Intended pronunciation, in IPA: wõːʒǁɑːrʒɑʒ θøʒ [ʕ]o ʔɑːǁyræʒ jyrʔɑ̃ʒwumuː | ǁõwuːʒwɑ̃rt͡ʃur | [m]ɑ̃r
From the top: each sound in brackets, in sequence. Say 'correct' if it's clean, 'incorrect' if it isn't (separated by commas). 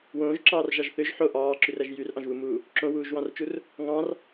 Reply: incorrect, incorrect